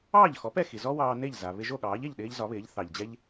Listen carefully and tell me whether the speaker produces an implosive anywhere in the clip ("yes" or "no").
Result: yes